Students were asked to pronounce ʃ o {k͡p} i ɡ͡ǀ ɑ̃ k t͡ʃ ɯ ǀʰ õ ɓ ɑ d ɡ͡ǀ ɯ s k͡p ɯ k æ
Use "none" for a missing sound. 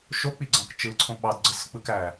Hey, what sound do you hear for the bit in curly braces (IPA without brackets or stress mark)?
k͡p